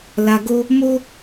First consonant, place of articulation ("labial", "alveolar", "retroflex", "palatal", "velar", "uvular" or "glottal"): alveolar